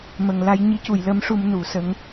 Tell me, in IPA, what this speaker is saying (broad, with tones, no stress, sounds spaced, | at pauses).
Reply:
m ə˨˩ ŋ l a˧ j ɲ i˧˥ c u˨˩˨ j l ə˧˥ m ʂ u˧ m n u˨˩˨ s ə˧˥ ŋ